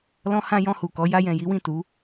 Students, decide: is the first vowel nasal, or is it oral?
nasal